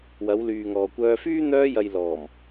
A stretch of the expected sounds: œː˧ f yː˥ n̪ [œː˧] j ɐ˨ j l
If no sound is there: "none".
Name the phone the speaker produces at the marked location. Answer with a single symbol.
œː˧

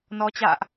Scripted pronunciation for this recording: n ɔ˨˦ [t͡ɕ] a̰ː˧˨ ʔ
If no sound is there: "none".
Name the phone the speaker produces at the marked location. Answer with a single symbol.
t͡ɕ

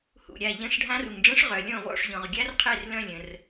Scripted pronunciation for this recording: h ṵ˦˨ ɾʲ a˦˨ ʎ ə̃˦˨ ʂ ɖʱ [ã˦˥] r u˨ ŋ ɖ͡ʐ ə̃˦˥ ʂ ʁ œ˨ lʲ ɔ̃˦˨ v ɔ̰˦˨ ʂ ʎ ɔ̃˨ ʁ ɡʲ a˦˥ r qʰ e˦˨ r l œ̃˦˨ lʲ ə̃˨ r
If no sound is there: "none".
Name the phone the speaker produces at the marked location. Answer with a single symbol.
ã˦˥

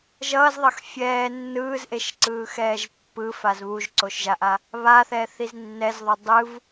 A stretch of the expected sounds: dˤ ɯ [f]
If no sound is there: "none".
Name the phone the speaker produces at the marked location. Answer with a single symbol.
v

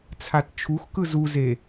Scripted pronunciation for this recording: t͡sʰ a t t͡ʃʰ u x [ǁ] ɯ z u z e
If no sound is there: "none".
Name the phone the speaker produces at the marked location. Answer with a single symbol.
k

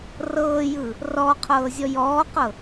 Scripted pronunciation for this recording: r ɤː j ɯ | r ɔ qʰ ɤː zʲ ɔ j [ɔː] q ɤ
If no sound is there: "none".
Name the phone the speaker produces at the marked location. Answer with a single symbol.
ɔː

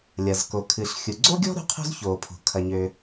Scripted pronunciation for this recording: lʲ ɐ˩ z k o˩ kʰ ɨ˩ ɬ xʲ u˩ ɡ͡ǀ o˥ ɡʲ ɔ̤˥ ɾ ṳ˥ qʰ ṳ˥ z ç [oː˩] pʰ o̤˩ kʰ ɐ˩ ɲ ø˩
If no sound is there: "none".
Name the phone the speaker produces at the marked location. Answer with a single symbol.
oː˩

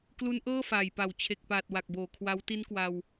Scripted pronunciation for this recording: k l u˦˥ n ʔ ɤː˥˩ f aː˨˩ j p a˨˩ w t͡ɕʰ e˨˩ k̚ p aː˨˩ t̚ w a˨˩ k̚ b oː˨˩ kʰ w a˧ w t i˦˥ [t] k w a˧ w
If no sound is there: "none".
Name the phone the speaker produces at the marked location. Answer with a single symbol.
n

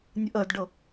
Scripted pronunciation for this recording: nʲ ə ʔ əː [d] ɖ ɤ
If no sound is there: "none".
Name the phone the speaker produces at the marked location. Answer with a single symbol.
d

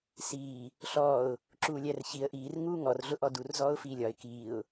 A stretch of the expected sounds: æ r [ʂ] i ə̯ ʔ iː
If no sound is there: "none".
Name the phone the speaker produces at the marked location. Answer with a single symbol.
ç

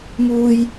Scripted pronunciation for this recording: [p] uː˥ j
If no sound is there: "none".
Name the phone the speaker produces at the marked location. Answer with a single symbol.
m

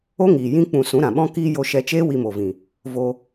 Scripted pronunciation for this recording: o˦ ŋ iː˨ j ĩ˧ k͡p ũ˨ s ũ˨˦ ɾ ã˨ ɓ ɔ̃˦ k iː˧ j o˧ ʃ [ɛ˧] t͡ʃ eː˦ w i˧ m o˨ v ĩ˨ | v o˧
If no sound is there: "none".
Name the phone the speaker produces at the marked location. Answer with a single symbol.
ɛ˧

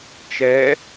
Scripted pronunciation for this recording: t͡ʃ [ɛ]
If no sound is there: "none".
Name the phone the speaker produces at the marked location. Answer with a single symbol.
ɛ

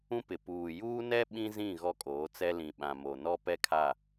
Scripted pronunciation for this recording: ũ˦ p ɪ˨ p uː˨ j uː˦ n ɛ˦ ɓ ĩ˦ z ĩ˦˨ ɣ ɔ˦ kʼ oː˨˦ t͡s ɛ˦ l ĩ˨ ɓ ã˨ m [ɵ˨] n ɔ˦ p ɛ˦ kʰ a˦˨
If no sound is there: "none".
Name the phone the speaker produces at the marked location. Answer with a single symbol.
o˨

